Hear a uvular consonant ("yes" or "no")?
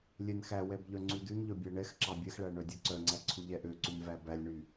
no